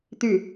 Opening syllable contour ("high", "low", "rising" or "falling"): falling